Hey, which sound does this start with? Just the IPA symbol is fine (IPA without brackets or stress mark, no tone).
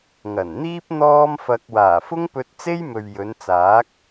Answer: ŋ